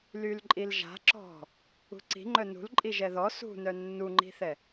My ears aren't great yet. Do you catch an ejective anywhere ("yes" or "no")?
yes